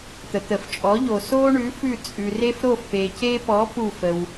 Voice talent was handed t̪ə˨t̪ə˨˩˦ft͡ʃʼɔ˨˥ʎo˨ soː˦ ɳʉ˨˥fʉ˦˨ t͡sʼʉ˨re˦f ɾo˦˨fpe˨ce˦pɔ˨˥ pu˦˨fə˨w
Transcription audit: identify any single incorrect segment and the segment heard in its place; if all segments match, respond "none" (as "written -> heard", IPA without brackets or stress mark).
none